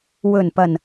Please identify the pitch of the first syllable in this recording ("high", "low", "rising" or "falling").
low